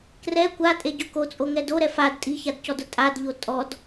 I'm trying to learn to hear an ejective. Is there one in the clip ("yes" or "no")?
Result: yes